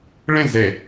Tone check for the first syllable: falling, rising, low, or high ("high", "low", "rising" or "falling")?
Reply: falling